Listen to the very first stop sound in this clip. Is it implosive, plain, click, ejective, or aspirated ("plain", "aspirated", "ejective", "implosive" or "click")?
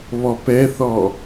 plain